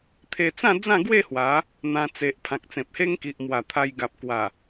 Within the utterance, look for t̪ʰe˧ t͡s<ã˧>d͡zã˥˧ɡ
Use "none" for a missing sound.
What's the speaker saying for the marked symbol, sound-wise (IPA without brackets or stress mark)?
ã˥˧